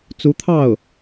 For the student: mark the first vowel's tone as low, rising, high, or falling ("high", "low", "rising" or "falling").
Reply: rising